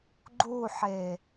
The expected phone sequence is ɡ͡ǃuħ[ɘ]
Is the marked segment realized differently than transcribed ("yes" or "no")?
yes